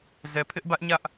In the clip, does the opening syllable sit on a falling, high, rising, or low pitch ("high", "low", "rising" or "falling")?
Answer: low